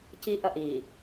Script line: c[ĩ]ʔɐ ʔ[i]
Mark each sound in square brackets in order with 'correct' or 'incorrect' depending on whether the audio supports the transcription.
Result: incorrect, correct

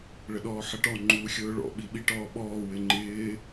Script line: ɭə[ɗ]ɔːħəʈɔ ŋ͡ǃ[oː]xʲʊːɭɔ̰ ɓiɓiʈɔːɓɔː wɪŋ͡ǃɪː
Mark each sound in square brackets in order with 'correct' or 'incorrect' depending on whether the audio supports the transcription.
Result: correct, incorrect

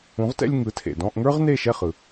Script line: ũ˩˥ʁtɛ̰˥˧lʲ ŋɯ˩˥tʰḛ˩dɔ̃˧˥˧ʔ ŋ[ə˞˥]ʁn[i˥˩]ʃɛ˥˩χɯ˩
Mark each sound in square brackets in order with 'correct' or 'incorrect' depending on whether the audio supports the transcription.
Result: correct, incorrect

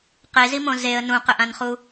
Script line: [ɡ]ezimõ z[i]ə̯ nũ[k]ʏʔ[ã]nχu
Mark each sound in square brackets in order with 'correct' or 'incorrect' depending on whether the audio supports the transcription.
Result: incorrect, incorrect, incorrect, correct

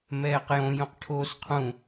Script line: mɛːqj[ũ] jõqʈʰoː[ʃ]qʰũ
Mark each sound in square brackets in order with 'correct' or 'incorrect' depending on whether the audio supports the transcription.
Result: incorrect, incorrect

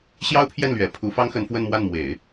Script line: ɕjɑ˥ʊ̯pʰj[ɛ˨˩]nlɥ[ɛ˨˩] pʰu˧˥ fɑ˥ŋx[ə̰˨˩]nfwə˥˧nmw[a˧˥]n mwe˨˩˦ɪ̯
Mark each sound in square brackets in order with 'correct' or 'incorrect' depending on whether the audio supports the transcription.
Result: incorrect, correct, incorrect, incorrect

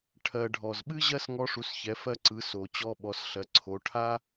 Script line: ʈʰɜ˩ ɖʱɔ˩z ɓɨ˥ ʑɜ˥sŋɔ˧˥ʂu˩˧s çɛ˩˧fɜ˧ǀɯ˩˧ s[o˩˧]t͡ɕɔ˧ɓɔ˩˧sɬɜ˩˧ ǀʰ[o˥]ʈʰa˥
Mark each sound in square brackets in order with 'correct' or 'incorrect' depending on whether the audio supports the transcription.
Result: incorrect, incorrect

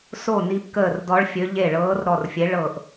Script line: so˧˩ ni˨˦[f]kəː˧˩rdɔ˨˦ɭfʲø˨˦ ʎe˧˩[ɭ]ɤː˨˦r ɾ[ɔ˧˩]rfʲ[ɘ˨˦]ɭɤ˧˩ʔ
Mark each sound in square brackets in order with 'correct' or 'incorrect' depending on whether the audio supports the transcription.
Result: incorrect, correct, correct, incorrect

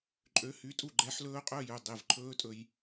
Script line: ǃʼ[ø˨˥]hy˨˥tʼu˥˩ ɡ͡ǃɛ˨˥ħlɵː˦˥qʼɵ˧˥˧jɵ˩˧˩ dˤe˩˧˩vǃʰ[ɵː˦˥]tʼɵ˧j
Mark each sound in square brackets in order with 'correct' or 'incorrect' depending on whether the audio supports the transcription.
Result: correct, correct

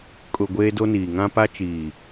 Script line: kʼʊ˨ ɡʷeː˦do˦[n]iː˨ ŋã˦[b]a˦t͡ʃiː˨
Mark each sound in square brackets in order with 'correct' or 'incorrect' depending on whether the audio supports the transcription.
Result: correct, incorrect

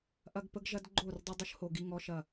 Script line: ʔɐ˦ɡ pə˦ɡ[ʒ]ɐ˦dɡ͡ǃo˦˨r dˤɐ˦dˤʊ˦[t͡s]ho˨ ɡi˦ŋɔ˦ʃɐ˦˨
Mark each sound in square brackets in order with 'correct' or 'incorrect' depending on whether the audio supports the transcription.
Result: correct, incorrect

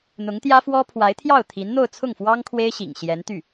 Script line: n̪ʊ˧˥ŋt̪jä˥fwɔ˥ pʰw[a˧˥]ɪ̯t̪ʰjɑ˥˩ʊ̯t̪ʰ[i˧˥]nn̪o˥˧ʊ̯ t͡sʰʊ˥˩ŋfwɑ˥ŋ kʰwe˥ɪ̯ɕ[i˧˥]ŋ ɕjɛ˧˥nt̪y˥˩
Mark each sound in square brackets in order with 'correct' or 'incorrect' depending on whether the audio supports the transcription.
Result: correct, correct, incorrect

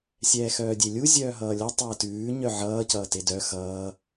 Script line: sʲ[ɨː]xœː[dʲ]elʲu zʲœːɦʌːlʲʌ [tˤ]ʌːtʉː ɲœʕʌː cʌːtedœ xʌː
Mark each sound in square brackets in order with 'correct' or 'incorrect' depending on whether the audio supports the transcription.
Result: incorrect, correct, correct

